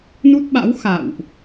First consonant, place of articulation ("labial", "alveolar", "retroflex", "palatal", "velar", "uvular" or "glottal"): alveolar